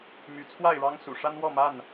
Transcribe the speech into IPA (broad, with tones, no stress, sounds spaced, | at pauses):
m y˨˦ t͡sʰ w a˥˨ ɪ̯ ɻ ɑ˦ ŋ s ṵ˨˩ ʂ a˦ n w ɔ˥˨ m a˥˨ n